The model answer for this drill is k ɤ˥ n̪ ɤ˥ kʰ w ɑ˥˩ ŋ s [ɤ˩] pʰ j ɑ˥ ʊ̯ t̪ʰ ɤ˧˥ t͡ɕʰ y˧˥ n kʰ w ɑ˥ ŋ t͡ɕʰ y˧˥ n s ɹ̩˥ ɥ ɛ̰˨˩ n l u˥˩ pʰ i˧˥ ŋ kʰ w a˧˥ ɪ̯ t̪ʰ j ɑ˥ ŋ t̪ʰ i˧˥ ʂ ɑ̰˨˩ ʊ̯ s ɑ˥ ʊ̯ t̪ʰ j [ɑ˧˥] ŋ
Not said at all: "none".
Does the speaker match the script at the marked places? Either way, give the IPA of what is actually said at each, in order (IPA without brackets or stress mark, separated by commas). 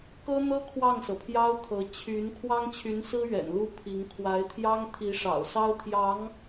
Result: ɤ˩, ɑ˧˥